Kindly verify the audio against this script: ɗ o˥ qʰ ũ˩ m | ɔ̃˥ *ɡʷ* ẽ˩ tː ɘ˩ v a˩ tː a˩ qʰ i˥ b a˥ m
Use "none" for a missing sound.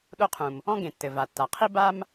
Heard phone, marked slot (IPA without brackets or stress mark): ɡ